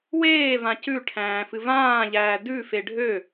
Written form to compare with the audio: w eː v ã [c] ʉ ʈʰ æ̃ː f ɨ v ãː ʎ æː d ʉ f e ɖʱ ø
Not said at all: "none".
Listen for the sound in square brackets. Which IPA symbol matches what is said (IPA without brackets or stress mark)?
c